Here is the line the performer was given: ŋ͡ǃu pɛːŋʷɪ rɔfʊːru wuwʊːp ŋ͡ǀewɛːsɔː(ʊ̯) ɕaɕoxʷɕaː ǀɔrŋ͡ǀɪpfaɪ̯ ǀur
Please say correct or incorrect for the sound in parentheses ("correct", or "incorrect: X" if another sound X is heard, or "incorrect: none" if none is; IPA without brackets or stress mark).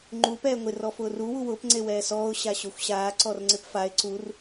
correct